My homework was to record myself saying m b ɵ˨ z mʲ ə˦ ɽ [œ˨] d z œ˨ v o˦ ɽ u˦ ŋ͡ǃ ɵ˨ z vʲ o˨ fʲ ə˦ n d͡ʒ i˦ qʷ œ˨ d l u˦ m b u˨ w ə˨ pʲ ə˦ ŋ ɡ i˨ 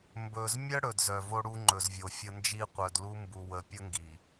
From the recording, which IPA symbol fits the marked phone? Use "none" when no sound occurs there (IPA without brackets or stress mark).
ɵ˨